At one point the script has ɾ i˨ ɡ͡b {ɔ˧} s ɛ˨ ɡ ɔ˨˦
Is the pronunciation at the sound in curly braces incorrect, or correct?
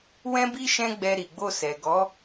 incorrect